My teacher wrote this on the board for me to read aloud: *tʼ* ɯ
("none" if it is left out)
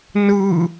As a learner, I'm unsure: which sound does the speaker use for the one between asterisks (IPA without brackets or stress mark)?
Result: n